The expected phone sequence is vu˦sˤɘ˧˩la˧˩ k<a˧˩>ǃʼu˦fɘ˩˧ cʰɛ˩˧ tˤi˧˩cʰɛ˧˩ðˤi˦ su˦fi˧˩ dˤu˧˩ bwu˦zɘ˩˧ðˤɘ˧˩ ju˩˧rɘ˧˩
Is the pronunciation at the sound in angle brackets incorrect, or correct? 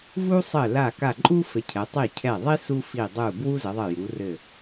correct